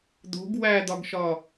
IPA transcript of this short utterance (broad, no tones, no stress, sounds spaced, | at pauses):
d̪ o̤ ɡ w æ d̪ ɒ ɡ ʃ ɒ